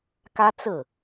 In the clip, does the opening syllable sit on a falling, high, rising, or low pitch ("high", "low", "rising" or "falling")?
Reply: high